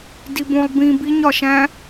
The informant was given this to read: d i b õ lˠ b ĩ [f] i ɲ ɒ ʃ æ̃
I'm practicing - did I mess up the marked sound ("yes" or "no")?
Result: yes